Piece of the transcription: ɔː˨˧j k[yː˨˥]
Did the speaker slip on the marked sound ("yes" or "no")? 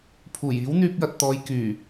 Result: yes